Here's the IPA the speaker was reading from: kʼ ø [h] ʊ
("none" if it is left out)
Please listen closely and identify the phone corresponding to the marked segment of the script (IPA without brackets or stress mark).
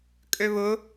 β